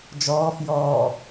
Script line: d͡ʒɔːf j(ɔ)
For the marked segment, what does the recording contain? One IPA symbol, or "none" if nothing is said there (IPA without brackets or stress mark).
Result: ɔː